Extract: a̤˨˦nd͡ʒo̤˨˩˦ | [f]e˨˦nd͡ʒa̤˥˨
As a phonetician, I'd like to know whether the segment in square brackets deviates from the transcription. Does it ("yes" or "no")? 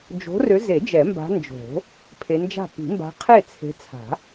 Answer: yes